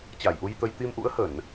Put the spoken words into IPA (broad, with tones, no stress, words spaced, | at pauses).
t͡ɕa˧˩jʔu˧jt̪ə˧j t̪i˧mʔṵ˧˥ə̯hə˧˩˨n